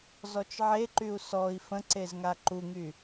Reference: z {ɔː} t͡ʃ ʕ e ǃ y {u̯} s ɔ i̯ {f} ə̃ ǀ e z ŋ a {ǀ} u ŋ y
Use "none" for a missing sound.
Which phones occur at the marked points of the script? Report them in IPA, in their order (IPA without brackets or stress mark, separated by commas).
ɔ, u̯, f, ǃ